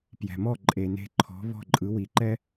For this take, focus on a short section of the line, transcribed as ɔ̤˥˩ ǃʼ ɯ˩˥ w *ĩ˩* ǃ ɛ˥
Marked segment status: incorrect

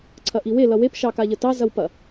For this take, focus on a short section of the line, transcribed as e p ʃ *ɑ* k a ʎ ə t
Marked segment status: correct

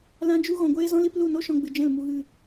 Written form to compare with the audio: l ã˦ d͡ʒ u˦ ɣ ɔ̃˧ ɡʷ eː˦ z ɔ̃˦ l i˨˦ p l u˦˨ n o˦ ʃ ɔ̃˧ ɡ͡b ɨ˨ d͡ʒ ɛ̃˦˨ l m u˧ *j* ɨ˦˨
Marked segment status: incorrect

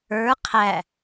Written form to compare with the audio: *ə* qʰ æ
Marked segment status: incorrect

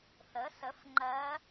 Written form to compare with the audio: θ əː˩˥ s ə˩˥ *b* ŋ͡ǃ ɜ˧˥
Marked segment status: incorrect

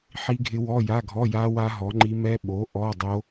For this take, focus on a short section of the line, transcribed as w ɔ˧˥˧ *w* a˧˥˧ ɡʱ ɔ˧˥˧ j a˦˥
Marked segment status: incorrect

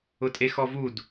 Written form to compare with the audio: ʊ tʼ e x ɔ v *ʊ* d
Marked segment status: incorrect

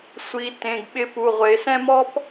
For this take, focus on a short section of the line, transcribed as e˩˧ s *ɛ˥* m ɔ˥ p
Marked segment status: incorrect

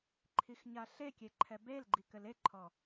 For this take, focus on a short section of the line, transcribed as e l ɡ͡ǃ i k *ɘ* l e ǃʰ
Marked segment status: correct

